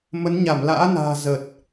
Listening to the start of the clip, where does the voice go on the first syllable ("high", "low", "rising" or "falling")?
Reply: rising